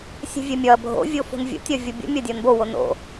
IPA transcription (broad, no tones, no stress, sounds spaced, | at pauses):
sʲ ɛ̤ vʲ ɛ mʲ ɒ ɐ̯ bʱ o̰ vʲ o f o̤ n vʲ o̰ tʲ ɒ vʲ ɤ bʲ o̰ mʲ ɒ dʲ ɒ n b o w o n o̰